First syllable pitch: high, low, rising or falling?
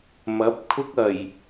rising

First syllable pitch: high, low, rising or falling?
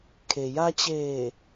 low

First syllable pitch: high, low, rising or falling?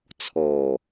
low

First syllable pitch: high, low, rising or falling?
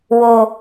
low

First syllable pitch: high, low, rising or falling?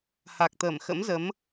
low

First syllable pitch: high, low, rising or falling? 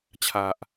low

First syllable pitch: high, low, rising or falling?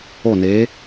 falling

